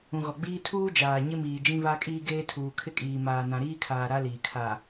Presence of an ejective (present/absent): present